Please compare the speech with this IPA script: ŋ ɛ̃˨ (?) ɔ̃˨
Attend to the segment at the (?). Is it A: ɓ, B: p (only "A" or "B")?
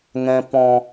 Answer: B